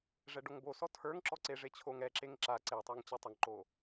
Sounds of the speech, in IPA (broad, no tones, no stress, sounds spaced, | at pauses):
ʐ ɛ ɖ o ŋ b o s ɔ tʰ ə˞ ŋ ǁ ɔ ǀ e ʐ e t͡ɕʰ o ŋ ɛ ǁ e ŋ ǁ a ǀ e tˤ ə˞ ŋ t͡ɕ ɛ tˤ ə ŋ ǃ o